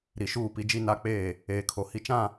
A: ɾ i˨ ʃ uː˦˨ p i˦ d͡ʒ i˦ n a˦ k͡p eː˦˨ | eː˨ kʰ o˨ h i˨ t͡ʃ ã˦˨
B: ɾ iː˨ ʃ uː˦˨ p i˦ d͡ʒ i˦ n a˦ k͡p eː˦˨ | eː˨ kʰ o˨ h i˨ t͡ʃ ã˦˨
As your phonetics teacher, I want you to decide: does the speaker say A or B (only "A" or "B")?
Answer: A